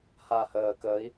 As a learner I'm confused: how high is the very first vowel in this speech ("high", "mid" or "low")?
low